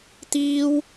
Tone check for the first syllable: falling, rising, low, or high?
high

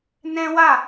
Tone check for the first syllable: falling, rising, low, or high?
high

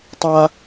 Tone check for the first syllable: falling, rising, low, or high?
high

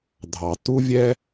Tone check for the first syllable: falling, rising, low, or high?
low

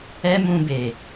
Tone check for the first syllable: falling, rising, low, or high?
high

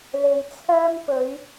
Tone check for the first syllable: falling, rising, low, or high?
low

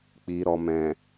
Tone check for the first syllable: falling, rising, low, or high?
low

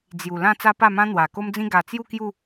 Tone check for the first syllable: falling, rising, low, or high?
low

